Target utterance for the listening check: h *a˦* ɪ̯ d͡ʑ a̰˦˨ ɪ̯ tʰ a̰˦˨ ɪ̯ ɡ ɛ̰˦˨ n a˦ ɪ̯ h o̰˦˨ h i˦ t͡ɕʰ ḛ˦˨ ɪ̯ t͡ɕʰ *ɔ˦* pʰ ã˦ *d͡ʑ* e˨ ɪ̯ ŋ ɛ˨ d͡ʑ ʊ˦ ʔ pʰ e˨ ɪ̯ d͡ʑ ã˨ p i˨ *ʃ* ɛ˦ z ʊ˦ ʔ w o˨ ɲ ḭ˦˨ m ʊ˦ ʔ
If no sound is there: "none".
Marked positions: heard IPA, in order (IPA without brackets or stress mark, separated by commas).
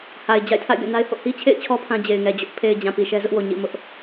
a˨, ɔ˦, d͡ʑ, ʃ